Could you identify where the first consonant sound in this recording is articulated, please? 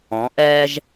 glottal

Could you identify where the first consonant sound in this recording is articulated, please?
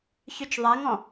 palatal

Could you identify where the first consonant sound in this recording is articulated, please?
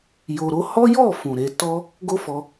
palatal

